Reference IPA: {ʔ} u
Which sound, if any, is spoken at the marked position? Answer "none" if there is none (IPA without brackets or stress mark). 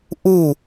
ʔ